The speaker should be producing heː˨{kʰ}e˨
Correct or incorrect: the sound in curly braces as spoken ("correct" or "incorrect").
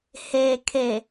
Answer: correct